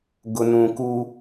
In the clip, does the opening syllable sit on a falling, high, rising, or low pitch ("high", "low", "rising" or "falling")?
low